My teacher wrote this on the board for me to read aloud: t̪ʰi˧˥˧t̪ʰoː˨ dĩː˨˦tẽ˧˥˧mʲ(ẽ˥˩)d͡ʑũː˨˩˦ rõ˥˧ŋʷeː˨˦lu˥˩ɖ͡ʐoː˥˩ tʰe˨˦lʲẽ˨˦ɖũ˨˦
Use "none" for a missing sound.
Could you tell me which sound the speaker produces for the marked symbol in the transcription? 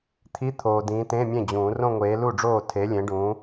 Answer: ẽ˥˩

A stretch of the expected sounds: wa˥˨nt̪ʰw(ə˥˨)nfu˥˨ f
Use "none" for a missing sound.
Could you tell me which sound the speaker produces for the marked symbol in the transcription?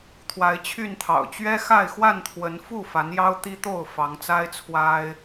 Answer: ə˨˦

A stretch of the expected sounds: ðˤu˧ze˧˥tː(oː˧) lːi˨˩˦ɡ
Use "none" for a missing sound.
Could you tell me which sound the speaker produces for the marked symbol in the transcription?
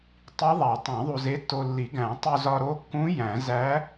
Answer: o˧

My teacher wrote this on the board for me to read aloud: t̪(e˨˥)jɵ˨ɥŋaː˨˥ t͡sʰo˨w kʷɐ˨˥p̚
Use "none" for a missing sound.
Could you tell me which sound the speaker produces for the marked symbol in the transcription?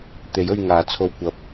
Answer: e˨˥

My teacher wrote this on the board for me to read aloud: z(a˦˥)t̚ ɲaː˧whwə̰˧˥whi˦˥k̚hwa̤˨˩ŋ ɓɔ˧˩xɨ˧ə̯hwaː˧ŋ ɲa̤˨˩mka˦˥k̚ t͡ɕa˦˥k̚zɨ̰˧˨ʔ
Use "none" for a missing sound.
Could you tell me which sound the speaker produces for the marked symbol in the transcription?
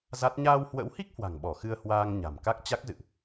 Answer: a˦˥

